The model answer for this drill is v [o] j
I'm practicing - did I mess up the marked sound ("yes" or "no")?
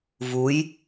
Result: yes